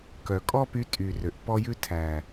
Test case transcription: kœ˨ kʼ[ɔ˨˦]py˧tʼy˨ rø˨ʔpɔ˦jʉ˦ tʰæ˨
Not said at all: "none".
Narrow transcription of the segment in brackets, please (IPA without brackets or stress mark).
ɔ˦